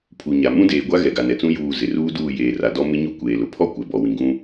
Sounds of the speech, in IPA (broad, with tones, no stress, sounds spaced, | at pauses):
pʰ u˨ ɲ a˨ m ũ˦ d eː˨ ɡʷ a˦ ɣ ɛ˨ ɡ a˨ n ɛ˨ t͡s ũ˦ j uː˦˨ z ɪ˨ r uː˦ d uː˦˨ j eː˨ r a˨ d ɔ˦ m ɪ˦ ɲ u˦ kʷ eː˨ l ʊ˨ pʰ ɔ˦ kʷ ɛ˨ b ɔ˨ w ĩ˨ ɡ ũ˦